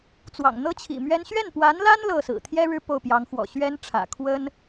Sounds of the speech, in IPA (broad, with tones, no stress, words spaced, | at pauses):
t͡swɑ̰˨˩ŋn̪ɤ˥t͡ɕʰḭ˨˩mɥɛ˥n ɕɥɛ˥˩npwa˧˥nla˥n lɤ˥˩ sɹ̩˨˩t̪ʰjɛ˥ ɻɻ̩˥˧ po˥˩ʊ̯pjɑ˧˥ŋxwɔ̰˨˩ ɕɥɛ˥nʈ͡ʂʰä̰˨˩ kʰwə˥n